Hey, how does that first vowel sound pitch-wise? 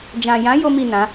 low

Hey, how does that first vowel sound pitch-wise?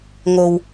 low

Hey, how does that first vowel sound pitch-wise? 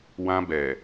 high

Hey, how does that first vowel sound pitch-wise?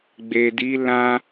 low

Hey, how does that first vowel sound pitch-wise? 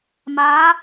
rising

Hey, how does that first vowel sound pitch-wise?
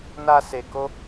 high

